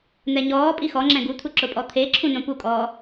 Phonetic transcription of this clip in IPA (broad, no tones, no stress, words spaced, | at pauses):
n̪ɛɲɔːpʼi xɔŋ͡ǁɛ̃ ɡut̪ʰu ǁʊpʼɔt̪ʰeǁʰũ nõpukʼɔː